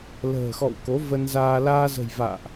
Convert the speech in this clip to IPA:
l ə̤ː˨˩ x ɔ̰˧˨ w k o˨˦ v ə˧ n z aː˧ l aː˧ z ə̤˨˩ j v a̰ː˧˨ ʔ

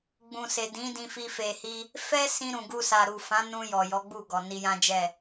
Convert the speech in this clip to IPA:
ɡ͡b ũ˨ s e˨ d ĩ˨˦ d ĩ˧ f i˧ f e˨ h i˧ | f ɛ˦ s ĩ˧ ɾ ũ˨ ɡ u˧ s a˨ ɾ u˨ f ã˨˦ n ũ˧ j ɔ˨ j ɔ˨˦ ɡ͡b u˦˨ ɡ ɔ˨ n i˧ j ã˦ d͡ʒ ɛ˦˨

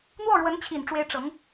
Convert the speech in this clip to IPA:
n̪ w ɔ˥˩ ɻ w ə˧˥ n t͡ɕʰ i˨˩ n ʈ͡ʂ w e˧˥ ɪ̯ ʈ͡ʂ ɤ˧˥ ŋ

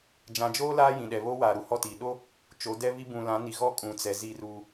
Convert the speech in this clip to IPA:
d͡ʒ ã˨ d͡ʒ oː˦ l aː˦ j ĩ˨ ɗ ɛ˨ β oː˦ w aː˨ ɾ u˨ h ɔ˦˨ t iː˨ ɗ o˦ | t͡ʃ o˨˦ d ɛ˦ β i˦ b ũ˨ l ã˨˦ n i˨ ɣ ɔ˦ kʼ ũ˨ t͡s ɛ˨ z i˦ r uː˦

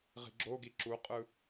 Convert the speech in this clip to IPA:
ʁ i̤ ɡ͡ǁ o ɡ i ǁ u qʼ ɯ

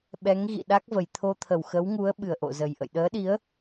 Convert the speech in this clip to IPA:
ɓ ɛ˨˦ ŋ ɣ ḭ˧˨ ɗ a˦˥ k̚ v ə˨˩ j t̪ʰ o˧ t̪ʰ ə˨˩ w x ə˨˦ w ŋ u˨˦ ə̯ ɓ ɨ˨˩ ə̯ ʔ o̰˧˨ z ə˨˩ j ʔ ə̰˧˨ j ɗ əː˨˦ ɗ i˨˦ ə̯

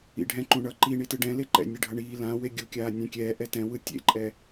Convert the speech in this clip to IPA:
ḭ ɖʱ ɛ̃ ǃ ũ ɳ ʌ ǃ i ɳ i t ɯ ɖ ɛ̃ l e ǃ ɛ̰ nʲ e ɖʱ ʌ ɳ iː l ã w e ɡʲ u kʲ aː nʲ ɛ̃ kʲ ɛː ʔ ɛ t ɛ̃ w ɯ tʲ ḛ ǃʼ ɛ

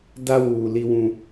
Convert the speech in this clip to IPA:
d a˦ w uː˨ l i˦ w ũ˦

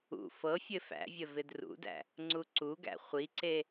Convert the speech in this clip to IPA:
ṵ f ɤ fʲ ɘ f æ̰ vʲ ə v ɪ d r ṵ d æ̰ | ŋ͡ǀ u ǀ u ɡ æ̰ χʷ i ǀ e

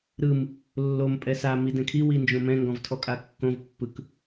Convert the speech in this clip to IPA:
ɾ ɯ m | lː o m pʼ ɛ s a m i d ɛ̃ kʰ i w i n d͡ʒ õ m ɛ̃ ŋ ɡ ɔ̃ v tʰ ɔ kʼ a kː õ v pː ɯ k

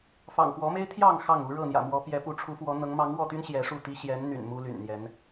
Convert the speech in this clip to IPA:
f ɑ̰˨˩ ŋ p w ɔ˨˦ m e˦ ɪ̯ t̪ʰ j ɑ˥˨ ŋ x ɑ˥˨ ŋ u˨˦ ɻ ɤ˥˨ n̪ j ä̰˨˩ m w ɔ˨˦ p j ɛ˨˦ p u˨˦ ʈ͡ʂʰ u˨˦ f w ɔ˨˦ n̪ ɤ˨˦ ŋ m ɑ˨˦ ŋ w ɔ˥˨ t̪ y˦ n ɕ j ɛ˨˦ ʂ u˥˨ t̪ i˦ ɕ j ɛ˨˦ n n̪ y̰˨˩ n m u˦ l y̰˨˩ n n̪ j ɛ˨˦ n

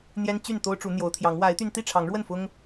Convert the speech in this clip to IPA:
n̪ j ɛ˦ n t͡ɕ y˥˨ n t̪ o˦ ʊ̯ ʈ͡ʂ u˨˦ n̪ j o˨˦ ʊ̯ t̪ʰ j ɑ˨˦ ŋ w a˨˦ ɪ̯ t̪ y˧ n t̪ i˥˨ ʈ͡ʂʰ ɑ˨˦ ŋ ɻ w ə˥˨ n f ʊ˦ ŋ

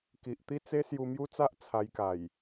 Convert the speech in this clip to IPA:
k i˨ ʔ t̪ i˥˧ t͡s e˦ s j u˧ m j u˦ t͡s a˦ ʔ t͡sʰ a˧ j k a˨˩ j

